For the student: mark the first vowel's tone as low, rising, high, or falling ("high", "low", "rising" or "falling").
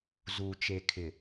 low